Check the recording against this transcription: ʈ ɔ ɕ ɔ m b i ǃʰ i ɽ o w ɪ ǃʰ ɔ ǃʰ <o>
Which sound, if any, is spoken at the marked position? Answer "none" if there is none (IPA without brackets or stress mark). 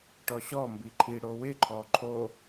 o